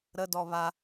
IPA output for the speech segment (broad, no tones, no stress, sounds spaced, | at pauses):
ɾ ə d ɔ β a